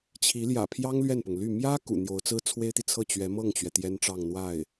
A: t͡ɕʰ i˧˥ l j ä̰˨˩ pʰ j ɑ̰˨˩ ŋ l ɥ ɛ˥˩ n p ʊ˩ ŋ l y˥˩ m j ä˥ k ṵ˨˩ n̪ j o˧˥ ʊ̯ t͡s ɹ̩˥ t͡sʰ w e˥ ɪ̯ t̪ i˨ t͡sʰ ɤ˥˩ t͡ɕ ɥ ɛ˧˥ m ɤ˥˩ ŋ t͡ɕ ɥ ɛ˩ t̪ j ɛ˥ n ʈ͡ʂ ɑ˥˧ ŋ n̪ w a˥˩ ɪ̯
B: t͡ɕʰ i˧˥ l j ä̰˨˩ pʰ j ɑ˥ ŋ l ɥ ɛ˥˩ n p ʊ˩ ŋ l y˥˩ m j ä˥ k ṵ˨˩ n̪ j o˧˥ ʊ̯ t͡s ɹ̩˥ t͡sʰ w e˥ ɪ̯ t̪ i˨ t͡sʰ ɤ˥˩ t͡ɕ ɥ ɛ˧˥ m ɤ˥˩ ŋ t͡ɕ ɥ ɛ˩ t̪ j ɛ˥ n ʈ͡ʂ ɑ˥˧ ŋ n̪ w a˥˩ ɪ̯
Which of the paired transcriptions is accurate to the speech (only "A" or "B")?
B